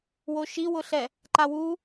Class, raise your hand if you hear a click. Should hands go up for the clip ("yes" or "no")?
yes